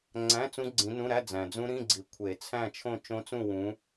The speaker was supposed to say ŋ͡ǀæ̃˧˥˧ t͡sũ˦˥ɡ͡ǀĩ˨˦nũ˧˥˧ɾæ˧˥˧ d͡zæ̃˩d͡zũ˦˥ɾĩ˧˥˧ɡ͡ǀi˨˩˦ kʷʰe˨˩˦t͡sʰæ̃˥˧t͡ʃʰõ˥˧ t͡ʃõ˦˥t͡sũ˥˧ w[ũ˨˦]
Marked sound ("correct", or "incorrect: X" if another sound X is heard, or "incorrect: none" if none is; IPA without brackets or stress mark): correct